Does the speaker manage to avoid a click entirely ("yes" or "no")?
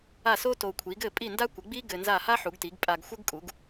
yes